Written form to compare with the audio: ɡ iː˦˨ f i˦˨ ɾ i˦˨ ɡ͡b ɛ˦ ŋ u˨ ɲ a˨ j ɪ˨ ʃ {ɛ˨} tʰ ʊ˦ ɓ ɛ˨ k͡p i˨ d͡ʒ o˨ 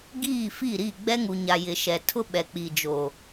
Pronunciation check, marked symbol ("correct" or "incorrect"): correct